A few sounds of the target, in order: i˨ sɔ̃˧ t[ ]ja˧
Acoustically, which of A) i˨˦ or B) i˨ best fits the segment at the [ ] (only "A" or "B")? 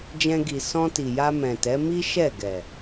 B